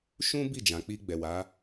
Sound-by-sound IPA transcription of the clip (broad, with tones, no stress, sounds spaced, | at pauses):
ʃ ũ˦ b i˦˨ d͡ʒ ã˨ k͡p i˧ ɡ͡b ɛ˨ w a˨˦